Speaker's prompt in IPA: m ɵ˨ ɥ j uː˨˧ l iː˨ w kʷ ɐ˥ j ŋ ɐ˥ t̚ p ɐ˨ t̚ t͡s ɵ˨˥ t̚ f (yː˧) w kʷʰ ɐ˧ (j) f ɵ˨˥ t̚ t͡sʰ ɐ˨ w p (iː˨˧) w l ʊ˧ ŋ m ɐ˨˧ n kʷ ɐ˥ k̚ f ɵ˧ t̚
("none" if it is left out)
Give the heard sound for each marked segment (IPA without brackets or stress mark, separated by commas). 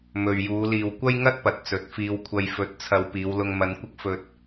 iː˧, j, iː˨˧